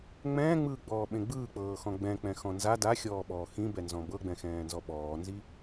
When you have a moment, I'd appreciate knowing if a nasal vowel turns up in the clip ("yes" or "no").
yes